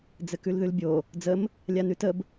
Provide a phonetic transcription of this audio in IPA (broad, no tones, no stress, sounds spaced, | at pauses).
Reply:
d͡z ɘ k ʉ l ð ʉ l bʲ o | d͡z ə m | lʲ a n ʉ t ə b